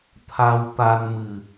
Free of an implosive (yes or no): yes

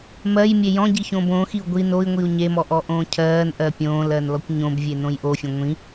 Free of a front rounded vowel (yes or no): yes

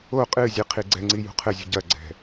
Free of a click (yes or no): no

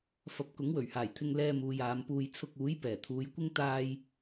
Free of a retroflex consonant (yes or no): yes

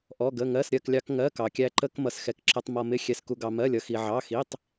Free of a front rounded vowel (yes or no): yes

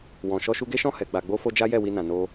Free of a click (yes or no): yes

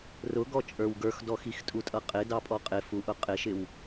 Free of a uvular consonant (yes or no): no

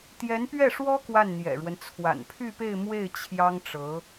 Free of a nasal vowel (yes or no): yes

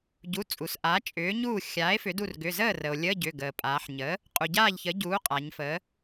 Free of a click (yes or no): yes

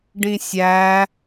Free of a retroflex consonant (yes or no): no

